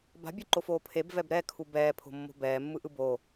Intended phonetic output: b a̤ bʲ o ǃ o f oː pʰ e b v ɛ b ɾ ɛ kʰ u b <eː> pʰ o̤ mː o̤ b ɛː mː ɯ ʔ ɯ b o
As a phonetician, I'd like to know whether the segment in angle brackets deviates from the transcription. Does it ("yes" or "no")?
yes